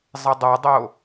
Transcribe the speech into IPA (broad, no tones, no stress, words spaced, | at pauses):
zˤɪdˤadˤo